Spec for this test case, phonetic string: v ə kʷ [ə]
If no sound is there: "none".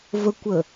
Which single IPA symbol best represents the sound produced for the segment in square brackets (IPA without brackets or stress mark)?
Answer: ə